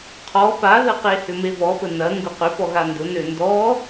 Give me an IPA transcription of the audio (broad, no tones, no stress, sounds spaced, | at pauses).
qʰ ɔ p a ð ə q e h ʏ m e v ɔ p ə n ɐ ŋ ɡ ʊ q ʏ p ɔ ɣ a n d ʊ n ø n d ɔ